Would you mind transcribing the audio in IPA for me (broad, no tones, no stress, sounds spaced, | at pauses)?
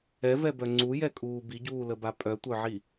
ɛ v ɛ b œ ŋ͡ǀ u j ɛ kʼ uː b i ɟ uː l ə b a pʼ œ tʷ œ ʕ i